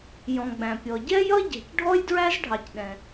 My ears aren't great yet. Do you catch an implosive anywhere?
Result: yes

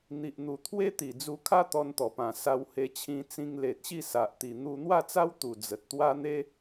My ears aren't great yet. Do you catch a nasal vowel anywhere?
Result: yes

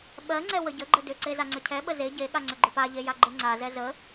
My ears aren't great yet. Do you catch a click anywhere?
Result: yes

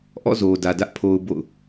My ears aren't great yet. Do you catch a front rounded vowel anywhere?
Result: no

